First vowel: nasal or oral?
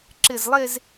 oral